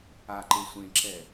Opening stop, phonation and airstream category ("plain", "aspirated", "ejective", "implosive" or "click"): click